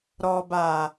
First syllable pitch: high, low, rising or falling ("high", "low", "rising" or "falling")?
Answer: low